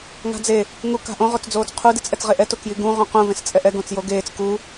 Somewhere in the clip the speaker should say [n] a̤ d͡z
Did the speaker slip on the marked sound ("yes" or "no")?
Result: yes